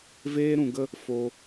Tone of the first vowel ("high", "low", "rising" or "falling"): high